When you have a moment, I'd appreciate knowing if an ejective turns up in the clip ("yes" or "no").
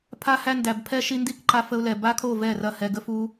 no